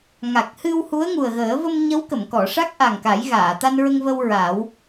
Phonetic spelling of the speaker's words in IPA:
ŋa˨˩k̚hɨ˧w hu˧˥ə̯ŋu˨˩ə̯ɣəː˨˩˦ və˧m ɲə˧˥wkə˨˩˨mkɔ˨˩˨ʂa˦˥k̚ ʔa˨˩ŋka˨˩˦j ɣaː˨˩˨t̪a˧nɹə˧ŋvə˧w ɹa˨˩˦w

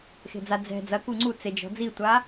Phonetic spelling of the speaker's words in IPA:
xe̤d͡za d͡zɛ̤ d͡zɐ kuŋ͡ǀu t͡sed͡ʒɔ̤ d͡zitʷa

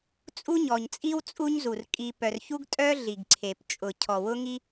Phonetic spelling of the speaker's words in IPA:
t͡sʼu˥ɲɔ˨ɲt͡sʼi˥w t͡sʼu˦ɲzu˩rkʼi˨ pœ˨rçu˥ɡ tʼœ˥ ɮi˩ɡǀʰe˩p t͡ʃʼʊ˩ cʰɔ˩wʊ˦ŋi˦

